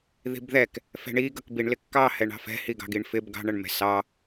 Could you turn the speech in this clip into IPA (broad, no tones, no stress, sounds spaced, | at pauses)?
ð i̤ b ð ɛ k | f ɛ̤ ɳ i ɡ ʌ k b i ɳ l ɪ kː ɑ h ɛ ɳ ɑ̤ f ɛ̤ h i ɡ ɑ̤ ɡ i ɳ f ɪ b ɡ ɑ̤ ɳ ʌ ɳ m ɛ̤ s ɑ